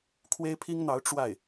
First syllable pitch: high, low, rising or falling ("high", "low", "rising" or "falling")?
high